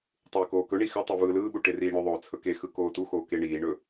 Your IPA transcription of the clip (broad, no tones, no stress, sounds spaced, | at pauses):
tˤ ɯː k oː k ɵ ɳ i x ʏ tˤ i v ɯː l ɯː ɓ u ʈ e r iː ɳ ʏ ðˤ oː t͡sʰ ɵ k e x ɯ k oː t u x oː k e ɳ iː ɳ ɵ